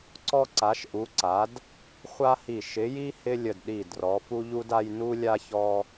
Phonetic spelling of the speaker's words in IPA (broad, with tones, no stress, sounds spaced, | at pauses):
ǀ ɔ˦ ǀ a˨˦ ʃ ʔ u˨˦ ǀ a˨˦ d | χʷ a˦ h i˧˩ ʃ ɪ˨˦ j i˦ h ɪ˦ lʲ ə˧˩ d ɗ i˧˩ d r ɔ˨˦ f u˦ ʎ u˦ d a˦ j n u˦ lʲ a˦ ç ɔ˦